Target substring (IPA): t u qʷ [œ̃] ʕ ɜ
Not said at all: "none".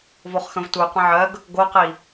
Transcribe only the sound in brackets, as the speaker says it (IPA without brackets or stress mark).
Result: ə̃